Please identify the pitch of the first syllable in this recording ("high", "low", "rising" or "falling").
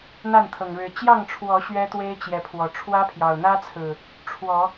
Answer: falling